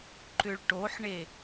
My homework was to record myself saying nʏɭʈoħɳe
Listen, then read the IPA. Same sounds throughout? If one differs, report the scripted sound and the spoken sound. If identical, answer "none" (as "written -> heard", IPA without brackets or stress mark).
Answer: n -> ǃ